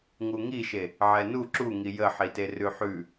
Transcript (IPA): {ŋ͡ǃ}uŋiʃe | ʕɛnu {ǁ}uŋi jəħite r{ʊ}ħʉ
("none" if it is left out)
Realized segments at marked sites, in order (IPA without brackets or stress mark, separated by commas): ŋ, ǁ, ʉ